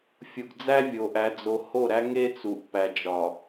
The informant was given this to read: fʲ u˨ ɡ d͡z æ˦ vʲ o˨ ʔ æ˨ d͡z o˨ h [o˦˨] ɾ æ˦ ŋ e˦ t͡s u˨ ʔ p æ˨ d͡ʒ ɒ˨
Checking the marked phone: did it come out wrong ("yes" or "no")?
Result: no